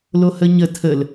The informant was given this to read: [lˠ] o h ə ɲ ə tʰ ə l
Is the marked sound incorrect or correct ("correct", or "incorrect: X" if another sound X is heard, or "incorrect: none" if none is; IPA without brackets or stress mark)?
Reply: incorrect: l